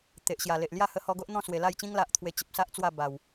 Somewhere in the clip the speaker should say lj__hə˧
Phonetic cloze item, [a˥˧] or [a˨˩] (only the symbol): a˥˧